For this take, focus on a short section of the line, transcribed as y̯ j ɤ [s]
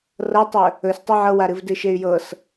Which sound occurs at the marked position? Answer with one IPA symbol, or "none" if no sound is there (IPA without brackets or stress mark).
s